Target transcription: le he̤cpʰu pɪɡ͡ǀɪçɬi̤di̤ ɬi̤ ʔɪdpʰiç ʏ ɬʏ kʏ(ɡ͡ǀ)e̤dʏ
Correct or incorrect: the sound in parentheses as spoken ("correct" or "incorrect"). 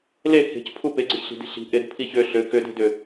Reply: incorrect